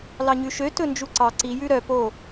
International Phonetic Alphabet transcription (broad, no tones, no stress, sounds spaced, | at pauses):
l ɑ ɲ ʉ ʃ ø t ɵ n d͡ʒ u ǀ ɑ ǀ i j ʉ ɾ œ p o